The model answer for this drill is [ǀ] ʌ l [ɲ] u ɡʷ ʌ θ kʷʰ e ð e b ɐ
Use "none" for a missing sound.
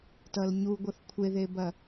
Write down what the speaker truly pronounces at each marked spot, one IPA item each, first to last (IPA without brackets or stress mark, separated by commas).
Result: t, ɲ